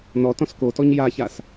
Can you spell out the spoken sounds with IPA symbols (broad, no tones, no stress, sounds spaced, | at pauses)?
n ɔ t ɔ̃ s k o t ɔ ɲ j a ç a s